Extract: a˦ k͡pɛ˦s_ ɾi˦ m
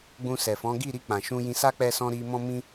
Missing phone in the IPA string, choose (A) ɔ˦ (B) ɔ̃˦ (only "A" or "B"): B